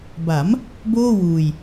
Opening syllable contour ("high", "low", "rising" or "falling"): rising